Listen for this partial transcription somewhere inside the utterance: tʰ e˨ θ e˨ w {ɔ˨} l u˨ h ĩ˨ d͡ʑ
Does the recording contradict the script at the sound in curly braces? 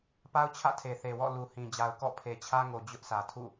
yes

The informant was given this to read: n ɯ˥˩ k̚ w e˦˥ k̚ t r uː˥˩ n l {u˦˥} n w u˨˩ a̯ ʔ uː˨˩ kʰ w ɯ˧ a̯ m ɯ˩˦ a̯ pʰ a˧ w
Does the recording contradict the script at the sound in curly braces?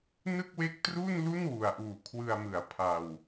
yes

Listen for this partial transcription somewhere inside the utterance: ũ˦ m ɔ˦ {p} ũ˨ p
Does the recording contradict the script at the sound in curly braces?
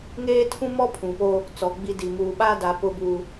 yes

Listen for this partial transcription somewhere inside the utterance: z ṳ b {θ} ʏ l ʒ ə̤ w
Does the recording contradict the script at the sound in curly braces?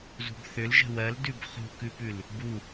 no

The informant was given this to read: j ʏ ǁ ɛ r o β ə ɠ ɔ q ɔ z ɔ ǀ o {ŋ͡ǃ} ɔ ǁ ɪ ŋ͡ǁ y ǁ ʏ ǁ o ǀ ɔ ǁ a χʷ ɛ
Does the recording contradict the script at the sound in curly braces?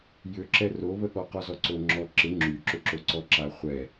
yes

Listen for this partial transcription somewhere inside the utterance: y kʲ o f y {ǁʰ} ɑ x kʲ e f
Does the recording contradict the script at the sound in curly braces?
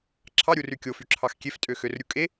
no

